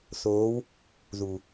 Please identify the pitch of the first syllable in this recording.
rising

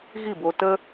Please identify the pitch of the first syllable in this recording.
falling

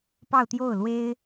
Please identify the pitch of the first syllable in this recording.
falling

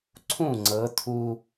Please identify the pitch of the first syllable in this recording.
falling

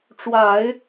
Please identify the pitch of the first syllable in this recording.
low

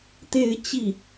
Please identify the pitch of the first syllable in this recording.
falling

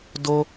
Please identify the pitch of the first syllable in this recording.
high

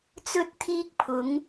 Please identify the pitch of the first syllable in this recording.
high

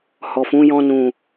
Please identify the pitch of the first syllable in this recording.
low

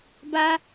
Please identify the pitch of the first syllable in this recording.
high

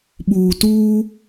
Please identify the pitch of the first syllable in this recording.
low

